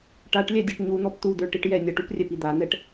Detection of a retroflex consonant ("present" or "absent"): present